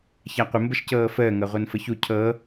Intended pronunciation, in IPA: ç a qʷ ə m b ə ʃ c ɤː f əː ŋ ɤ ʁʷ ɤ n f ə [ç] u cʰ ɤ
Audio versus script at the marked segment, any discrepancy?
no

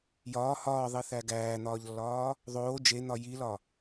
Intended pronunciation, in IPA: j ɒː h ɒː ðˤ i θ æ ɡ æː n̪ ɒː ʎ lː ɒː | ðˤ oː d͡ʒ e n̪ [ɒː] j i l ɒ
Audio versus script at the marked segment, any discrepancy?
yes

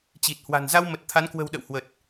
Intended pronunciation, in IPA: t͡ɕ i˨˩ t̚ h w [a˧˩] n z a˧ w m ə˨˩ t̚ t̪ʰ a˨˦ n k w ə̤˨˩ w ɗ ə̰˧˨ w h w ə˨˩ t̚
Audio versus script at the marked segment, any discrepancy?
yes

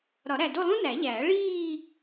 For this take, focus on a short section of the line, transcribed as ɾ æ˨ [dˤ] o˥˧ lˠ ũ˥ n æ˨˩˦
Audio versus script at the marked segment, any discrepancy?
yes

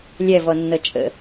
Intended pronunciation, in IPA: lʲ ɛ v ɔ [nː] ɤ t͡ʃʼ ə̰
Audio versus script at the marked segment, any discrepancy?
no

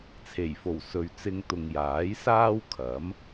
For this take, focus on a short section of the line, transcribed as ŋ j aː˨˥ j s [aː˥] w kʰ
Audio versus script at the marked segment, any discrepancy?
no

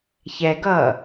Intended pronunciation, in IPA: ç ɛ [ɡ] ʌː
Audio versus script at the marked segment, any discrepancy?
no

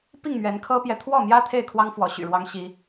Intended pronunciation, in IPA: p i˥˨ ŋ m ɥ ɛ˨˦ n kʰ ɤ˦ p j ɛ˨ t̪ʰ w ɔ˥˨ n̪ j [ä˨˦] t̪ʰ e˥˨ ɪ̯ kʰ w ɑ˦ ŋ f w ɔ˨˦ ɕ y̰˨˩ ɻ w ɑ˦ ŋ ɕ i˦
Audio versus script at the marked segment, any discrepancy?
yes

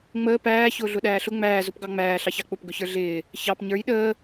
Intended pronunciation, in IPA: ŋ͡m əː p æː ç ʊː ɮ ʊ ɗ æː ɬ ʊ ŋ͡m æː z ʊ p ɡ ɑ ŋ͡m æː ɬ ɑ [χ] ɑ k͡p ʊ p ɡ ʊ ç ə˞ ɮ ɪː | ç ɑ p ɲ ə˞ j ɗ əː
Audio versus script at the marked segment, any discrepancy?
yes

